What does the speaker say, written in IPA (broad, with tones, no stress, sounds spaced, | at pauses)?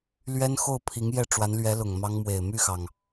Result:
l ɥ ɛ˥ n x o˥˩ ʊ̯ pʰ i˧˥ ŋ j ɛ˥˩ ʈ͡ʂ w a˧˥ n l ɥ ɛ˧˥ l ʊ˨˩ ŋ m ɑ˥ ŋ m w e˨˩ ɪ̯ m y˥˩ x ɑ˩ ŋ